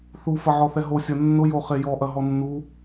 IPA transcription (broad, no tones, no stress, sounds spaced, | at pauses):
θ u f ɐ ʕ ɔ θ ɛ ɦ o sʲ ɐ nː ʊ j o χ e j ɔ ʔ ɐ ɦ ɔ nː u